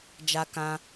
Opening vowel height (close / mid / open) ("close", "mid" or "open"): open